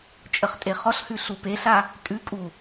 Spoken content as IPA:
t͡ʃʼəχtʼeχɔɬhʉ ɬupeɬa | tʼʉkʼu

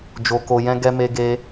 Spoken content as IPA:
d͡ʒo˧ko˧ jɛ̃˧ ɡɛ˦me˦ɡe˦

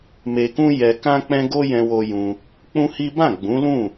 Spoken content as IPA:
me˨kũ˧ jɛ˨kã˧k͡pɛ̃˧ ɡo˦jɛ̃˧wo˧ jũ˧ | k͡pũ˦hi˦ bã˦˨ɡ͡bũ˨˦lũ˦˨

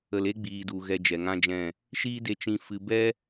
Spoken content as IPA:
ə˨le˦ɡ͡biː˨du˨ ɣɛ˧d͡ʒɛ˨ŋã˦d͡ʒɛ̃˦˨ | ʃiː˦de˧ t͡ʃĩ˧ fɨ˧ bɛ˦

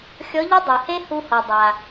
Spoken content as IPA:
xʲɔ˧˥ʎɨ˥dˤu˩he˥ hu˧hɔ˩ dˤa˩

